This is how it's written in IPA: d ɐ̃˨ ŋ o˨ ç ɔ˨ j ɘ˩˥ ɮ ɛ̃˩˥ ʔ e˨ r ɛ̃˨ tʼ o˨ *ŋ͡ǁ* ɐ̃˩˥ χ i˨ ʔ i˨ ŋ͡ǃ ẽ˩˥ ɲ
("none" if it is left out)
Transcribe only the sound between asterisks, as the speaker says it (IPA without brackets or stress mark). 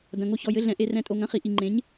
ŋ